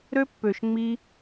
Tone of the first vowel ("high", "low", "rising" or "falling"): high